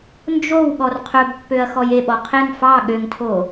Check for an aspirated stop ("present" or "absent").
present